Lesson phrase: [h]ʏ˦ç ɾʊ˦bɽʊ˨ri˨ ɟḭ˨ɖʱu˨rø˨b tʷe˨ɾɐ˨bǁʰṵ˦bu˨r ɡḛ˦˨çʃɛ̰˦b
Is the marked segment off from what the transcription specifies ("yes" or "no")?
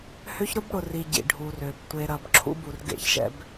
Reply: no